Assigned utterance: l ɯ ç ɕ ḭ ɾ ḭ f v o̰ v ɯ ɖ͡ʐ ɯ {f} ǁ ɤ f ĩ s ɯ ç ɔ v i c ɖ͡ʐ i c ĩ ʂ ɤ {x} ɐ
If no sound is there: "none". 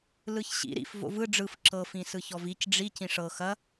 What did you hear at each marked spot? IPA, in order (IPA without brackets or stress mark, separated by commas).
f, x